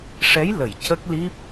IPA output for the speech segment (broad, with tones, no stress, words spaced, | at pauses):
ʂɛ˧˥jlə˨˩˨j cə˦˥k̚li˦˥p̚